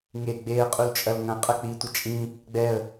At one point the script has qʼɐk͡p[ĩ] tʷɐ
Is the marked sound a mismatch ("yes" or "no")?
yes